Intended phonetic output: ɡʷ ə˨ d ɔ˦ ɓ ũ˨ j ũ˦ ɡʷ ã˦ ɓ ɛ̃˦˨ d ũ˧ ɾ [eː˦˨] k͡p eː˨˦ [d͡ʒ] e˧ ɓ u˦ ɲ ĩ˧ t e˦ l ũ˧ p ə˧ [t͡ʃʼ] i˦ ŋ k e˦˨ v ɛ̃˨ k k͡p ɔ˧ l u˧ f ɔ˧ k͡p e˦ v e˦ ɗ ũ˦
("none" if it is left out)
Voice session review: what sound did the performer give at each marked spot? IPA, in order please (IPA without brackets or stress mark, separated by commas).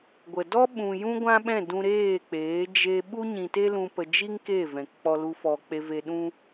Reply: eː˦˨, d͡ʒ, d͡ʒ